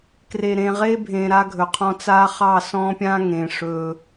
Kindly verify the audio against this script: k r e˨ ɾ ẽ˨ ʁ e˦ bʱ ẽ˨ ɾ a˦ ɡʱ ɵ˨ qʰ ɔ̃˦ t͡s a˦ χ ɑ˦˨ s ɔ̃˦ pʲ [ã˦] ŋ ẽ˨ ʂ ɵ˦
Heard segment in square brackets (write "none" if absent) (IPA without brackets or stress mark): ã˦